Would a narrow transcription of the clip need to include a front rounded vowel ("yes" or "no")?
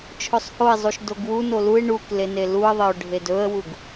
no